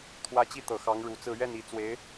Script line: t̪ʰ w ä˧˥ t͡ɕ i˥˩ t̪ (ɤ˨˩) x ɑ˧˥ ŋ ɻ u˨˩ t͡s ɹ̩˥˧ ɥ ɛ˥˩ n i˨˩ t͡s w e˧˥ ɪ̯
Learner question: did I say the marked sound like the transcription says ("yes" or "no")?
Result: yes